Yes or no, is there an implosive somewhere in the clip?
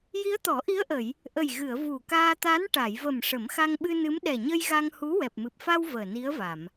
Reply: yes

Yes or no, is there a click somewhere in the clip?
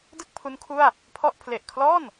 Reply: no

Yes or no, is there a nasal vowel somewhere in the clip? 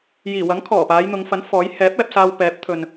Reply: no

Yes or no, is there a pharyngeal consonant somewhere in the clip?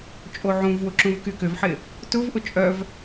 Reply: yes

